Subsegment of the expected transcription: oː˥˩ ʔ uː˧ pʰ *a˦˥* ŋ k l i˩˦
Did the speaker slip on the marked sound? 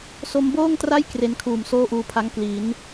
no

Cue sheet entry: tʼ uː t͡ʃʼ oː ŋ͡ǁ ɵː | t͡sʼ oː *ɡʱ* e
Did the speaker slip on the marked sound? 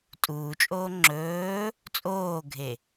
no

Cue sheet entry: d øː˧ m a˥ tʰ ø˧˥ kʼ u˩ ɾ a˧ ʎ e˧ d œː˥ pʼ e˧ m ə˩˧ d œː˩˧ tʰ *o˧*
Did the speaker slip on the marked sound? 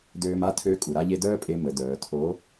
yes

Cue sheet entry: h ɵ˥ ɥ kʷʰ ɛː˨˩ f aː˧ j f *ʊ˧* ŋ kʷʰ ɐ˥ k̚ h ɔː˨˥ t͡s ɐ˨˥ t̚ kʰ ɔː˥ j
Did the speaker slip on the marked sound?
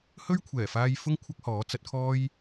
yes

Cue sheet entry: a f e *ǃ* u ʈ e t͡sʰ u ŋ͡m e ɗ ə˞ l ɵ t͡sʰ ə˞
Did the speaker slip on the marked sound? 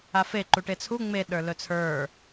no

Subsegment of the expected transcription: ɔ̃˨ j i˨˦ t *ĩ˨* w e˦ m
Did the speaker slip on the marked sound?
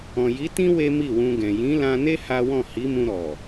yes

